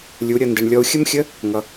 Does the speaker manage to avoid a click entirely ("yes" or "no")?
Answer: yes